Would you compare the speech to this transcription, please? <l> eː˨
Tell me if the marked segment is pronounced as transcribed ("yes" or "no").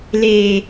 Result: yes